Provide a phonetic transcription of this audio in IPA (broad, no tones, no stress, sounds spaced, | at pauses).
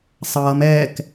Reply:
sˤ ʌː m ɛː k